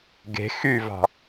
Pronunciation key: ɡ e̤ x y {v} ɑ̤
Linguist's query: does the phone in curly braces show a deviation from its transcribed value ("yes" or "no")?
no